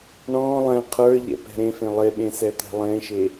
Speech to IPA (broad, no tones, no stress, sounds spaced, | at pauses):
ɳ ɔ̃ lˠ ɛ̃ qʰ ə˞ ʎ ɛ̰ p ɛ̤ ɾ ẽ f ẽ lˠ e ɓ ẽ s ɛ t̪ ɛ̤ lˠ ẽ ʃ e